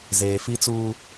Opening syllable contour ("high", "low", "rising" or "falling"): low